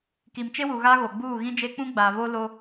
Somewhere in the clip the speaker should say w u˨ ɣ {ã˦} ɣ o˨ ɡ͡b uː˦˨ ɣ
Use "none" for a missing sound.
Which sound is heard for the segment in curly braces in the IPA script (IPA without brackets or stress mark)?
a˦